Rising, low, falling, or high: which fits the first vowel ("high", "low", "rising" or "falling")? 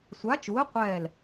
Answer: rising